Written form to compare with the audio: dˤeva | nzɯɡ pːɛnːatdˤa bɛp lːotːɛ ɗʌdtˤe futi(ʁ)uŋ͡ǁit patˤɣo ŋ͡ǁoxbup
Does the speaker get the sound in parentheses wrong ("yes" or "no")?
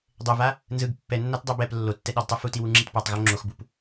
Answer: yes